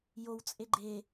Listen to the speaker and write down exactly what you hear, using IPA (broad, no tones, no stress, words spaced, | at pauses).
jowt͡sʼe ɡ͡ǃeː